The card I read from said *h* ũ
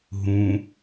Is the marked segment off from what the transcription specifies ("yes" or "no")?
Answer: yes